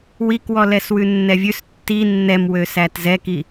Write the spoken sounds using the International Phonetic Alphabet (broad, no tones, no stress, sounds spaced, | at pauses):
w i k w ɔ l ɛ s w ʉ nː ɛ vʲ ʉ s tː i nː ɛ m w ø s æ t z ɛ k i